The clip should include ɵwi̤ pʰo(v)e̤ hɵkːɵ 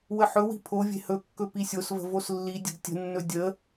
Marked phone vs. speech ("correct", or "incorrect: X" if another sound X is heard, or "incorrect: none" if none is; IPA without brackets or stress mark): incorrect: vʲ